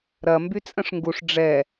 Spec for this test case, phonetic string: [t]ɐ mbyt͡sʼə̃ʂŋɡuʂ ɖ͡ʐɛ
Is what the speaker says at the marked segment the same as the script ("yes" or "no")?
no